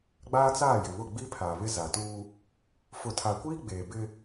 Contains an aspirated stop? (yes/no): yes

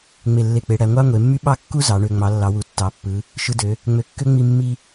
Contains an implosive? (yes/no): yes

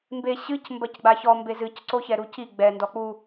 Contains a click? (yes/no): yes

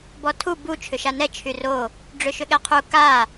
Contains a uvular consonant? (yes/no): yes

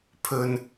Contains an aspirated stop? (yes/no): yes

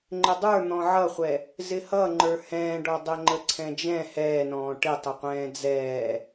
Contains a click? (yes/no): yes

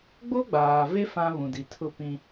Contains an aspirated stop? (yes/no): yes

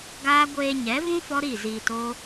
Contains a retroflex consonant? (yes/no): no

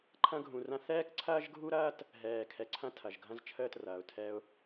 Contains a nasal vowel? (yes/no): yes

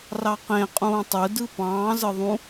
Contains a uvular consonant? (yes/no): yes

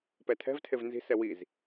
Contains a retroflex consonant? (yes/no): no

